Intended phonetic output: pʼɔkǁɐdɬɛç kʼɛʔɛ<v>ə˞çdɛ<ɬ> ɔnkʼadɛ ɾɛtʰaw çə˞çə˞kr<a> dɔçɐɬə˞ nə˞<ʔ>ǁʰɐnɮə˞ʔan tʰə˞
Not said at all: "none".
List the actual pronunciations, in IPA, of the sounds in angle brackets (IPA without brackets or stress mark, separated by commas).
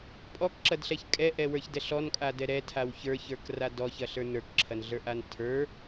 w, ɬ, a, k